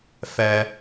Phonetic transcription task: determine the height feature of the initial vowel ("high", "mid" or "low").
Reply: mid